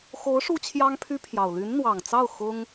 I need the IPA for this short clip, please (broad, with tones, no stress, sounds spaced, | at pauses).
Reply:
x o˧˥ ʊ̯ ʂ u˥ t͡ɕʰ j ɑ˥ ŋ pʰ y˥ pʰ j ɑ˨˩ ʊ̯ l y˧˥ n n̪ w ɑ˨˩ ŋ t͡s ɑ˥˩ ʊ̯ x ʊ˥ ŋ